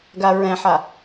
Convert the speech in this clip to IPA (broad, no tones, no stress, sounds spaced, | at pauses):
ɡ a ɹ ɛ̃ ħ a